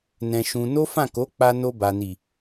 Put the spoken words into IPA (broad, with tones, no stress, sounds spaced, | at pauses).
n ɛ̃˧ ʃ ũ˧ n o˦ f ã˦˨ k o˨˦ k͡p a˧ n o˧ b a˨ n i˨